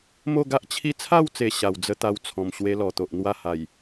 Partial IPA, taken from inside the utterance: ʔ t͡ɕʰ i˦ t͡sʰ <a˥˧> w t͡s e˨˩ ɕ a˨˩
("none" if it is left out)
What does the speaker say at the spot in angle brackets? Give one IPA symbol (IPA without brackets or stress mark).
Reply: a˥˧